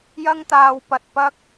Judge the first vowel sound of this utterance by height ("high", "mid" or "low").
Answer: low